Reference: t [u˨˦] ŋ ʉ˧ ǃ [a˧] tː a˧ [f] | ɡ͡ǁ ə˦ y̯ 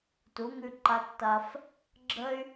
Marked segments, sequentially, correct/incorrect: correct, correct, correct

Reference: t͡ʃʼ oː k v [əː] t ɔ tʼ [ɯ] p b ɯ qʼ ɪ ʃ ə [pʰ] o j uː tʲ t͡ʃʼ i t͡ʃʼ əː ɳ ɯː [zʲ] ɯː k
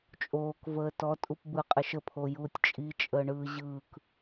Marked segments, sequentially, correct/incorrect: correct, incorrect: u, correct, incorrect: ʑ

